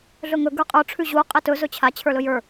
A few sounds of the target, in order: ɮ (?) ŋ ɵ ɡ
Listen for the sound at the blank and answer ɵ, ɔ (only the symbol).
ɵ